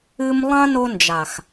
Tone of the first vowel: high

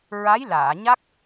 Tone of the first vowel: rising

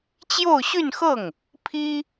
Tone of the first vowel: falling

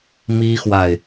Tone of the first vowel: high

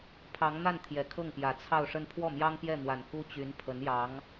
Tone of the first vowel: rising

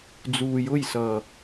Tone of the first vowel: low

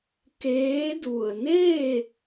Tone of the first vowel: rising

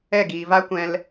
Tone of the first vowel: falling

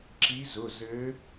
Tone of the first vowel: rising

